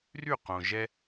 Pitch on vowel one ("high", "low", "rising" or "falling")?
falling